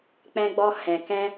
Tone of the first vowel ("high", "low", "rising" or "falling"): high